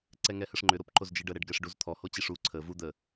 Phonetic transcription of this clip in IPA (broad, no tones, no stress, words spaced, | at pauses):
ǀɛŋɛhəʂŋ͡ǃʏ ɾopǃozd͡ʒiɖə ɾɛɖɡɛʂɖuzt̪ʰɔ hot͡ɕiʂu ǀʰə vu d̪ə